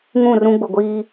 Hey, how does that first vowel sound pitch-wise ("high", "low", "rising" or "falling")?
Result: falling